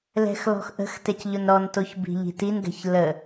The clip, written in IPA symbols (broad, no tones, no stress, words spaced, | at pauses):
lɛ̤xlɔ̤xʔə̤x tɛcʎʊnɾɔntoç bi̤ʎi̤tinɡɛ̤ç lə